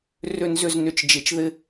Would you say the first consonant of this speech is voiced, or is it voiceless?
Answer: voiced